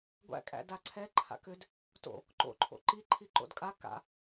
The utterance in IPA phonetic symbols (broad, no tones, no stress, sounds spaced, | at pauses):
ɡʷ æ̰ kʼ æ̰ d a ǀʰ ɛ ǃʰ a̰ k ʏ d | t o̰ | ǃ o̰ ǃʰ o̰ ǃ i ǃʰ i ǃ o̰ d kʼ a k a̰